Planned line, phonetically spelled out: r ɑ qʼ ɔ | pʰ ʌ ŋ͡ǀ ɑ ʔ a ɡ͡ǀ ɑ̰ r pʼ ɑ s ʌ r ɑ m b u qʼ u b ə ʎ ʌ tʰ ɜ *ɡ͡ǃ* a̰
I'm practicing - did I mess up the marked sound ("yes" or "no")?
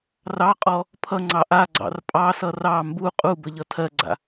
yes